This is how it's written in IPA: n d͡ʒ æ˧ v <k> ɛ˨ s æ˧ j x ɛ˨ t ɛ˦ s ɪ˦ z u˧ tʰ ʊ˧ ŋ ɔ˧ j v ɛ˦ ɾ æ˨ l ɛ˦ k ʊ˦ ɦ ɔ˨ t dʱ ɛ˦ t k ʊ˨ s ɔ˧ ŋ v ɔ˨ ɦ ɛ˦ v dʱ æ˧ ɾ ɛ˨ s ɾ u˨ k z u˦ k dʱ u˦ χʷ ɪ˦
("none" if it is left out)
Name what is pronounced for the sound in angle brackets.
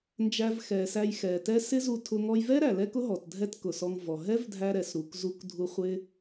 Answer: x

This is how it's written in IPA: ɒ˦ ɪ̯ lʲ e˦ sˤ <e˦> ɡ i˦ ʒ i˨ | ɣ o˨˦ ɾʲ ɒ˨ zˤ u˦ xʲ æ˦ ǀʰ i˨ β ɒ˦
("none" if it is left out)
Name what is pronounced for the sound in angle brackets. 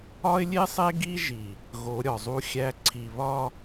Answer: e˦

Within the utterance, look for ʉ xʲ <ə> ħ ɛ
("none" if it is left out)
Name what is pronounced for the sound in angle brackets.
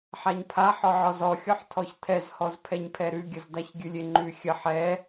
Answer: ə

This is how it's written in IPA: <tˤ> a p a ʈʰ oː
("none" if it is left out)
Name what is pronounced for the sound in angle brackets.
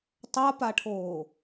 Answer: tˤ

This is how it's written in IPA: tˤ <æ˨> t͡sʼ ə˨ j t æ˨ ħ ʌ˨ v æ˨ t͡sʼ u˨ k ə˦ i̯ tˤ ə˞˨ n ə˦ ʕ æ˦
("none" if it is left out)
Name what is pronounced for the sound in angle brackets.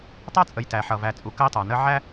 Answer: æ˦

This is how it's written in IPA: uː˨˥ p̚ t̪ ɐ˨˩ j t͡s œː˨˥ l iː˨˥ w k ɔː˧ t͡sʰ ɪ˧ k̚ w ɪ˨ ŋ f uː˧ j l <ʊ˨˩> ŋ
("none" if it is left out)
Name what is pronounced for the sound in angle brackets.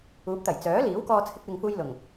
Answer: ʊ˨˩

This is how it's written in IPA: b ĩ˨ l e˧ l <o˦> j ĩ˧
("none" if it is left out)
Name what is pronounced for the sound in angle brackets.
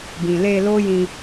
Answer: o˦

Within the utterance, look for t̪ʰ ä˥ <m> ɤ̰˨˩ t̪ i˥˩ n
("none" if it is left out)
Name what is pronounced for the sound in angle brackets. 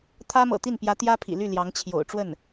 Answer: m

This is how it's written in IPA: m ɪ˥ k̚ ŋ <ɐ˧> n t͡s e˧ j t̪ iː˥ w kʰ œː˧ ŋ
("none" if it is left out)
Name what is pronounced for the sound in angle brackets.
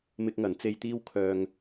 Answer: ɐ˨˥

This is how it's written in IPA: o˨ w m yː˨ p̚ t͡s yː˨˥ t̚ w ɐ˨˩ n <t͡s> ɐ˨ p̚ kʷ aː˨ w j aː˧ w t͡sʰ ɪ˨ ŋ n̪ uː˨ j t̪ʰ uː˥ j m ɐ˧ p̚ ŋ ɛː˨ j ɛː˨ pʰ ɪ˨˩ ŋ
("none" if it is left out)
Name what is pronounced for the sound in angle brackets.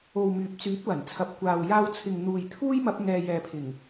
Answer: t͡sʰ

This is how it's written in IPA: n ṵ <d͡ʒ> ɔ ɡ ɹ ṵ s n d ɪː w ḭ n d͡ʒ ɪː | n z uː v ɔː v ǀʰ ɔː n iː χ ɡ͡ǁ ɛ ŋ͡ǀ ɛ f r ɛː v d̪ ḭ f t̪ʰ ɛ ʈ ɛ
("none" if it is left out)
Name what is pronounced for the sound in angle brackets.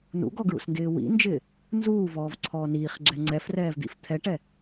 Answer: ɡ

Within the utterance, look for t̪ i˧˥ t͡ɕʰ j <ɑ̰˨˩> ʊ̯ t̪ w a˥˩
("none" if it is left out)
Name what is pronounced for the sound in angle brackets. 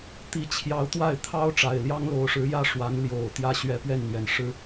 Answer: ɑ˧˥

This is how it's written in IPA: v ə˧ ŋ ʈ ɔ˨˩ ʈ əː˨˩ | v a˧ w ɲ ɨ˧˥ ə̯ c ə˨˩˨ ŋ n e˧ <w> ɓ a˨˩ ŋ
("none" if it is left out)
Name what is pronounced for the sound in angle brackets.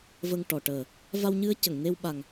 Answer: w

